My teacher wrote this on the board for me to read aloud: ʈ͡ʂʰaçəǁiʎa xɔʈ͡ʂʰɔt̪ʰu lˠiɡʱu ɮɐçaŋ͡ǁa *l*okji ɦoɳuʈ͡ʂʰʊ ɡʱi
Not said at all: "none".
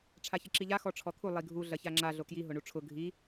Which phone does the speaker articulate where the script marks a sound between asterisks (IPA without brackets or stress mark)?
ɮ